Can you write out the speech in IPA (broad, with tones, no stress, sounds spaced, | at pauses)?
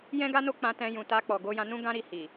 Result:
j ɛ̃˦ ɡ a˦ n o˦ k͡p ã˧ t ɛ̃˧ j ũ˨ t a˧ k͡p ɔ˨ ɡ o˧ j ã˧ n ũ˦ ɡ ã˦ ɾ i˦˨ h i˨